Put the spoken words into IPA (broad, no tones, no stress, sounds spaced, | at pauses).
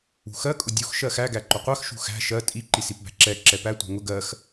ṳ x ɜ kʼ ʊ dʲ u x ʃ ɜ x æ ɡ æ ǃ ʊ qʷ ɜ x ʃ ṳ x æ̤ ʃ ɜ tʼ i ǃ i s i p b æ̤ ǁ ɛ ǁ ɛ p æ tʷ ɛ̤ ŋ ʊ ɡ ɜ x